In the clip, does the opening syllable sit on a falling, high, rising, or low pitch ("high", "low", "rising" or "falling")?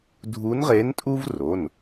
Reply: rising